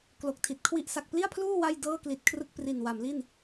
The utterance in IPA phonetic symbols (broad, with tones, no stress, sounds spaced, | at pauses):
k l o˨˩ k̚ tʰ i˨˩ t̚ kʰ w i˥˩ ʔ s a˨˩ k̚ p l i˥˩ a̯ pʰ l uː˥˩ w a˥˩ j d ɤː˥˩ k l i˨˩ t̚ kʰ r ɯ˥˩ k̚ p r i˨˩ n w a˩˦ m l i˥˩ n